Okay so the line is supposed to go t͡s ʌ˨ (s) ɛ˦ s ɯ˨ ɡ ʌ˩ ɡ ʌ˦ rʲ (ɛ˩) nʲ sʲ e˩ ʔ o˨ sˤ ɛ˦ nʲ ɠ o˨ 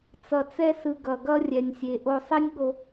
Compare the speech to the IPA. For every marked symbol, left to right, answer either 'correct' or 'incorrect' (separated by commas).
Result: incorrect, correct